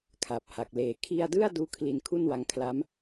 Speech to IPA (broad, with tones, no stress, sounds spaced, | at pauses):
kʰ a˨˩ p̚ h a˨˩ k̚ l eː˨˩ kʰ i˧ a̯ d ɯ˥˩ a̯ d uː˦˥ kʰ l i˧ n kʰ u˥˩ n w a˧ ŋ kʰ l a˦˥ m